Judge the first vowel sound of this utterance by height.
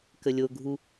mid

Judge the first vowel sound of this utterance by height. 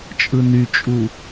high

